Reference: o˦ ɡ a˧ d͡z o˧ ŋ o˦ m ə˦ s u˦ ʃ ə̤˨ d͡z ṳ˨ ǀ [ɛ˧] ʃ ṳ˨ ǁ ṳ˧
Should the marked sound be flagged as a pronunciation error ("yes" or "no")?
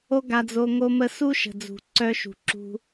yes